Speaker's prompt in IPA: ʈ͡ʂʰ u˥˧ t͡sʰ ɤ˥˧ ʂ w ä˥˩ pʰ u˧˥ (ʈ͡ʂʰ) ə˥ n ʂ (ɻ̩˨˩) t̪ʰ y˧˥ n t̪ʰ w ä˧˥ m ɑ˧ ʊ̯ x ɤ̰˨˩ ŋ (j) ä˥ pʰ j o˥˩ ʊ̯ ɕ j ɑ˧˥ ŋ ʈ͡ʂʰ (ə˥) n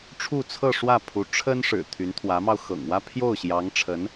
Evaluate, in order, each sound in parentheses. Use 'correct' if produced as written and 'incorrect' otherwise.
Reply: correct, correct, incorrect, incorrect

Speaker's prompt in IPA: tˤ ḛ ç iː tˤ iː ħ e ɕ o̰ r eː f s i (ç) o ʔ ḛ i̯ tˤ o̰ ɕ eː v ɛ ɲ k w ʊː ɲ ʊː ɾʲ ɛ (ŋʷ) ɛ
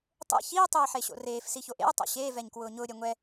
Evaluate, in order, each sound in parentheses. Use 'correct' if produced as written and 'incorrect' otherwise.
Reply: correct, correct

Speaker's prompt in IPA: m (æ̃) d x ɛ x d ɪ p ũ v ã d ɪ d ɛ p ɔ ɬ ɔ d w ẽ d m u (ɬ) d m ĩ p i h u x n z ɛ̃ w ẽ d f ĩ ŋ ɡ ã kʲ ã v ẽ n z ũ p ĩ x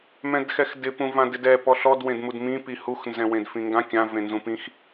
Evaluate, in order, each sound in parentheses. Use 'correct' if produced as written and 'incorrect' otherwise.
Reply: incorrect, incorrect

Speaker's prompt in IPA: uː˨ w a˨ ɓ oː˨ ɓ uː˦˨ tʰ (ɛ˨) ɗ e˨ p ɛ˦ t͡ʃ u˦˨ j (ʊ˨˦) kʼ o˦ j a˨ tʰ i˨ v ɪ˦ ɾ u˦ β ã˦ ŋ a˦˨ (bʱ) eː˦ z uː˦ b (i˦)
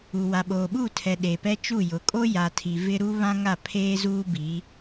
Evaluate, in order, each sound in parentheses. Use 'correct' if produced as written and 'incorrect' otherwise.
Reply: correct, correct, incorrect, incorrect

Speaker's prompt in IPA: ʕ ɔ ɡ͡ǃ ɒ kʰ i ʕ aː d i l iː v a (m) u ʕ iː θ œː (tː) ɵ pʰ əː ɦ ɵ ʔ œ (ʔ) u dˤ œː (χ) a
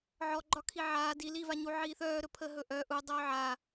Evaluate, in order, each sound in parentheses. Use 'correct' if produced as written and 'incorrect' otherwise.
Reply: incorrect, incorrect, correct, incorrect

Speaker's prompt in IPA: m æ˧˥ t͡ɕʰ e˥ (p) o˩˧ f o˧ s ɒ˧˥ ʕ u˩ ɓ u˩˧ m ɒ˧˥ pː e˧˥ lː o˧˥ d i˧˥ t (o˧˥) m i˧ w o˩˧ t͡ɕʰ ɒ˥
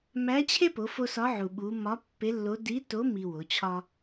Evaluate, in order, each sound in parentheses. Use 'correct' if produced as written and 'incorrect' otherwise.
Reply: correct, correct

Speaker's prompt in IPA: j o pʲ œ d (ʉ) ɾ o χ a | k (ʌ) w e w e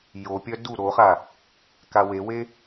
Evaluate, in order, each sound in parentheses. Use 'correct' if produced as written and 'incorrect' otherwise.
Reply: incorrect, incorrect

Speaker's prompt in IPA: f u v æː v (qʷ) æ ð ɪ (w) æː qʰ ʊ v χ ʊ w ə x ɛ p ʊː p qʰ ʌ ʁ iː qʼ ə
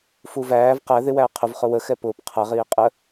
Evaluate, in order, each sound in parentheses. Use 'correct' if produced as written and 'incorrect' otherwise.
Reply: incorrect, correct

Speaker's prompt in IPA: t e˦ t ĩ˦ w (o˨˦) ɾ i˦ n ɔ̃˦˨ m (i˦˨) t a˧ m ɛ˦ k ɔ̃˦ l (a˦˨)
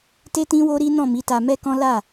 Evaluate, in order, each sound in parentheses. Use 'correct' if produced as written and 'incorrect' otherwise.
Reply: incorrect, incorrect, correct

